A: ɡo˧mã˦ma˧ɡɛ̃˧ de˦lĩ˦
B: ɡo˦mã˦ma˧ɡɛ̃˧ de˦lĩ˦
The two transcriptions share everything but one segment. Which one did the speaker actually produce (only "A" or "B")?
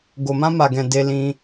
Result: A